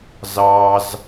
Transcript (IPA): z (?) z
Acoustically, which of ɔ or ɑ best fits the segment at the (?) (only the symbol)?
ɑ